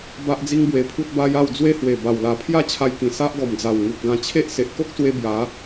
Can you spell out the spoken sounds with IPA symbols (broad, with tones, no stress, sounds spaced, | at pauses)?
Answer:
b a˦ ʔ d͡z i˦ ŋ b w e˧ pʰ u˦ t̚ b a˦ j a˥˧ w d͡z w e˦ h w e˨˩ b a˨˩ w l a˨˩ pʰ j a˥˧ t͡ɕʰ a˧ j k ĩ˨˩ s a˦ ʔ ɡ ɔ˨˩ m d͡z a˨˩ w ŋ u˨ p̚ ɡ ã˧ t͡ɕʰ e˦ ʔ s e˨ ʔ k o˦ k̚ s w e˧ b j a˨˦